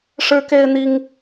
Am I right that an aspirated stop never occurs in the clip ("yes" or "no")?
yes